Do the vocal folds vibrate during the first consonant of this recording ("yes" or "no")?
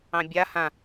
yes